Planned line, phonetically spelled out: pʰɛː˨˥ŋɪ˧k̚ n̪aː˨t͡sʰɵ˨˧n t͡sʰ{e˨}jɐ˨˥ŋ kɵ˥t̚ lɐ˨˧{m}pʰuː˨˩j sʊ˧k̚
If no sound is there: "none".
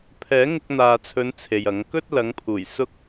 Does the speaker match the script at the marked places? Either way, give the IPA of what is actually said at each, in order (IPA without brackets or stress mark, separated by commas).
e˨, ŋ